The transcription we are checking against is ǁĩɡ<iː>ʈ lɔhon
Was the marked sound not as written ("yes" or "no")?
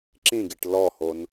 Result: yes